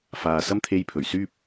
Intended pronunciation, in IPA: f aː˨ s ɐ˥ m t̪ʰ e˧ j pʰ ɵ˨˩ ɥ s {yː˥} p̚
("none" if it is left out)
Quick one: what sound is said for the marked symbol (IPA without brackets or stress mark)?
yː˥